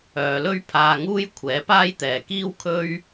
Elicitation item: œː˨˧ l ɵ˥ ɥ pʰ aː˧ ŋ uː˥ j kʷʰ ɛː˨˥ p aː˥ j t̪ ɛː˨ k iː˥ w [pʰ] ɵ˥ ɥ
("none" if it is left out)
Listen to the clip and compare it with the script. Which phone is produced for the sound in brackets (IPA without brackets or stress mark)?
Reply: kʰ